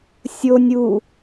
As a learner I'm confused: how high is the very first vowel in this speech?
mid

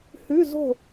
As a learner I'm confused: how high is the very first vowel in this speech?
high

